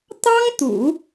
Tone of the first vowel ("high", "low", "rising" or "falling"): high